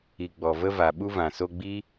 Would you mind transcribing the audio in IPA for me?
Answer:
i˨ ɡ͡bɔ˨və˧va˨ ɓu˧vã˨so˧ ɡ͡bi˦

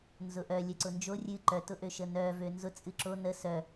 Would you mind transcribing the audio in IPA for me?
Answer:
nzʊʔœ lʲœǀʊnd͡ʒo rʲɨ ǃœ tʊʔøʃənœ vønzʊ t͡sʼɨǁo nə sœ

